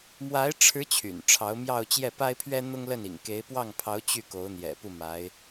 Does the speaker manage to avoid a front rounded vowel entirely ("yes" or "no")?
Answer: no